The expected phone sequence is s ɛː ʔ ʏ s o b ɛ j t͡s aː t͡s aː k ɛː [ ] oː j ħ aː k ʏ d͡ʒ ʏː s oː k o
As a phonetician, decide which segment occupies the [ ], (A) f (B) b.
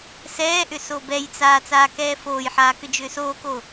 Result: A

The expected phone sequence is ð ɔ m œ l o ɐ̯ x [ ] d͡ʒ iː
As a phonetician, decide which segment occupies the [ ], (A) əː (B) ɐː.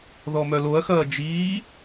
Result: B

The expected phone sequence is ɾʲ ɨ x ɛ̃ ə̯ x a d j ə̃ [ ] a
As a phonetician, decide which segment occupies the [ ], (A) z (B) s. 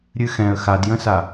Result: B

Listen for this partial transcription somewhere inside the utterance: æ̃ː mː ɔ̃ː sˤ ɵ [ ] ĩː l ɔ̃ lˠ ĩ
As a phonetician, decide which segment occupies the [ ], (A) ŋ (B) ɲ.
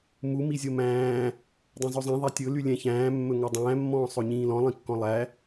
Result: B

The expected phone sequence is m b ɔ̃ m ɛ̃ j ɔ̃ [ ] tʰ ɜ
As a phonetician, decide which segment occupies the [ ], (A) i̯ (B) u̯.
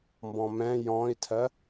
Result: A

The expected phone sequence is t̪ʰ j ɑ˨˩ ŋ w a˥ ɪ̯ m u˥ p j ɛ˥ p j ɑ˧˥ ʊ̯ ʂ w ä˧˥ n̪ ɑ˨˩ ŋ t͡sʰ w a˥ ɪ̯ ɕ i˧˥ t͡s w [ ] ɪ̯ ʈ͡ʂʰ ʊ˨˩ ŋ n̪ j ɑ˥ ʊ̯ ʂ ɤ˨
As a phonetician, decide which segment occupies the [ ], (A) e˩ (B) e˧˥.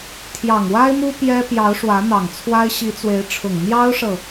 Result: B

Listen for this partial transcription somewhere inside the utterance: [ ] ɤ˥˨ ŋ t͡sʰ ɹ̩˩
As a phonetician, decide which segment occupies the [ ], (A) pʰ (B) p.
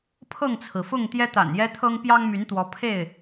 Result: A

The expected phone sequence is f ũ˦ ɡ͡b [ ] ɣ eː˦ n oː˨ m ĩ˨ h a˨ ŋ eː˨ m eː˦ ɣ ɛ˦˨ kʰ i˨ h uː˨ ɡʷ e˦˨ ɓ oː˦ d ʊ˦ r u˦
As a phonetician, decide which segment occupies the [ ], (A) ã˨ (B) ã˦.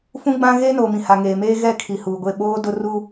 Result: B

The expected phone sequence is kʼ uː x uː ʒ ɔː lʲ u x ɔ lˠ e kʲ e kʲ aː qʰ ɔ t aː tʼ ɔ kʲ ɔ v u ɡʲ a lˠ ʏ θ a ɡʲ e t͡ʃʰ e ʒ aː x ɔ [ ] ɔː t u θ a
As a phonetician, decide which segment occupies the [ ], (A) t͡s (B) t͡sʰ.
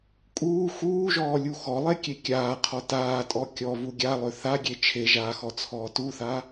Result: B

